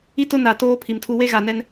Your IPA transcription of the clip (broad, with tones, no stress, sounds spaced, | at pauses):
i˦ t ʊ˦ n a˨ t oː˦ pʰ i˨ m tʰ u˦ w e˦ ɣ a˨ n ɛ˦ n